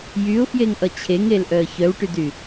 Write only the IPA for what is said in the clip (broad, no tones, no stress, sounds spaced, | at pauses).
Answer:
j y ʊ̯ f j e ŋ ʔ ʌ t͡ɕʰ e ŋ e l ʔ œ ə̯ ç œ w ʈ y d y